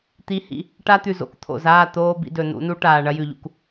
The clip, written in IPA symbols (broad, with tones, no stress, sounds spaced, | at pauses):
t̪ i˨˦ h ḭ˨ | ʈ a˦ t̪ ʉ˨ z o̰˨ k t̪ʰ o̰˨ z aː˦˨ t̪ oː˧ b ḭ˧ d ɵ˨ n ṵ˨˦ n u˦ ʈ aː˨ ɳ ɐ˦ j ʉ˨ ʎ ṵ˨ k